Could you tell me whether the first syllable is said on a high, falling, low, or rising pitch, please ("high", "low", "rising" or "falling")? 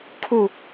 low